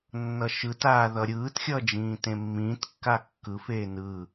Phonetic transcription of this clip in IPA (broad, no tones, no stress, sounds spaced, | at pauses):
nː ʌ ʃ ɯ t aː ð ʌ ɾʲ ɯː t xʲ ʌ d͡ʒ ĩː t ẽ mː ĩː t kː a kː ɯ f eː n ɯ